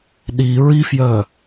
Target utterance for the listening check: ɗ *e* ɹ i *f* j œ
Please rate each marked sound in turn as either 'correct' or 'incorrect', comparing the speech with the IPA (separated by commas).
incorrect, correct